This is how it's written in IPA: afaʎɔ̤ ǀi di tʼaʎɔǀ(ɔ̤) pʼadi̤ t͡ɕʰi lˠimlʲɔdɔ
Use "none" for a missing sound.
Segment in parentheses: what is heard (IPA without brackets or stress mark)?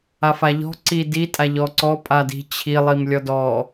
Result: ɔ